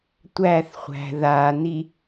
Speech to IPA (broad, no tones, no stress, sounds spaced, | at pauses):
tʷ æ θ χʷ æ̤ ð a n i